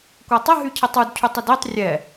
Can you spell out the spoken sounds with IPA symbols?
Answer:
kʷ a tˤ ə ɦ y cʰ ə tˤ u d cʰ u tˤ ə d e tˤ rʲ ɛ

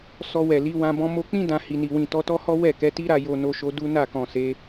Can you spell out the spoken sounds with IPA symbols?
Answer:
s ɔ˧ w ɛ˨ l i˨˦ w ã˧ b ɔ̃˧ m o˧ k͡p ĩ˦ d ã˧ h i˨ n i˨ w ĩ˨ t ɔ˧ t ɔ˦ h ɔ˦ w ɛ˦˨ k ɛ˨˦ t i˦ ɾ a˧ j o˧ n o˧ ʃ o˧ d u˦ n a˦˨ k ɔ̃˨ s e˨˦

